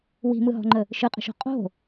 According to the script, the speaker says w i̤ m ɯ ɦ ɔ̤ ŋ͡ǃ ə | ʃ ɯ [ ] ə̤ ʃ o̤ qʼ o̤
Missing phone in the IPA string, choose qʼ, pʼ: qʼ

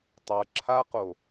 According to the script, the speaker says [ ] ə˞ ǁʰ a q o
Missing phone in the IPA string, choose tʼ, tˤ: tˤ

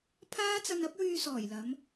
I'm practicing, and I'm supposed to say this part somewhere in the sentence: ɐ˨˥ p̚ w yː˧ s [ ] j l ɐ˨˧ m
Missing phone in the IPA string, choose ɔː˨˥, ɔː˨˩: ɔː˨˩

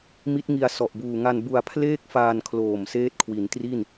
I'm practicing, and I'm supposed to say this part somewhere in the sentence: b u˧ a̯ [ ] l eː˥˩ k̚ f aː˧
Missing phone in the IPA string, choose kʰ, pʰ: pʰ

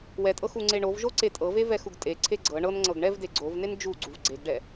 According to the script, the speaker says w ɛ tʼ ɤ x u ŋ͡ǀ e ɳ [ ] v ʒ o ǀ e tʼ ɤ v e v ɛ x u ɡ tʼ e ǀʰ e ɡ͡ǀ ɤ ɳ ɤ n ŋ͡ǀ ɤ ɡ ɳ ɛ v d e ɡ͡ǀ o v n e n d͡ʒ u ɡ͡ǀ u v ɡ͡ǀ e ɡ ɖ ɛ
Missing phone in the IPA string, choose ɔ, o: o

